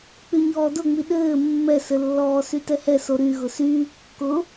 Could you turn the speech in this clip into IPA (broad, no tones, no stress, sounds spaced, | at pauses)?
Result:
k͡p y ɲ ɔː d ʊ ŋ͡m i ɗ ɘː mː ɛ s ɘ lː ɔː s y t ɛ h ɛ s o ɾ y ɣ ʊ s yː kː ʊ